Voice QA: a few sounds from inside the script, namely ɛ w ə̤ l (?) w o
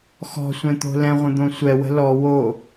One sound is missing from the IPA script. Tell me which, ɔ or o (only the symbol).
ɔ